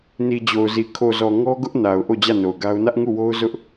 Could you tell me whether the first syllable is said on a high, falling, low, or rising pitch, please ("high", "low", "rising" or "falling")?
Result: low